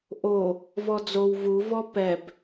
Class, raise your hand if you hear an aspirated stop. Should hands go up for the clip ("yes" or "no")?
no